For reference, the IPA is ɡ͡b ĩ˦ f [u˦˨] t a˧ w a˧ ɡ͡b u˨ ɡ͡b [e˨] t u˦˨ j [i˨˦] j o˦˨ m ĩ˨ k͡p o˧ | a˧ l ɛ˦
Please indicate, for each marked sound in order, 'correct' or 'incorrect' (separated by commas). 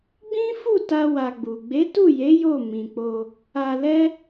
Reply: correct, incorrect, incorrect